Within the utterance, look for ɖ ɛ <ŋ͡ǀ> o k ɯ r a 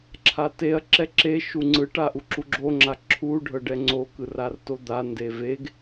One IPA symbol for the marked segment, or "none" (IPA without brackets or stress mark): ŋ͡ǀ